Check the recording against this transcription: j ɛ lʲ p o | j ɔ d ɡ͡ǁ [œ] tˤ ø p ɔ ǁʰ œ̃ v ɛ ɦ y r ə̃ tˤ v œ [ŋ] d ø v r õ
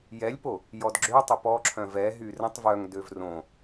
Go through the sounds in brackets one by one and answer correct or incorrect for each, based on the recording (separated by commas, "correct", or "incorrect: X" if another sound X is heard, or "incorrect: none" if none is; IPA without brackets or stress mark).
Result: incorrect: ø, correct